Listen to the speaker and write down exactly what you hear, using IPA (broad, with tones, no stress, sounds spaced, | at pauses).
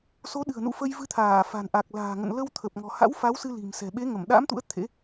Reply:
s o˨˦ ɗ ɨ̤˨˩ ə̯ n ṵ˧˨ f ə˧ j v ɨ˧ t̪ʰ aː˧˩ f a̤˨˩ n ʔ a˨˩ k̚ l a̤ː˨˩ ŋ ə̰˧˨ n l ə˧ w t̪ʰ ə˨˩ p̚ ŋ ɔ̤˨˩ h a̰˧˥ w f a˨˦ w s ɨ˧ l i̤˨˩ m s ɛ̤˨˩ ɓ e˨˦ ŋ ə˧˩ m ɗ a̰˧˥ m t̪ ṵ˧˥ ə̯ t̪ʰ ḛ˧˥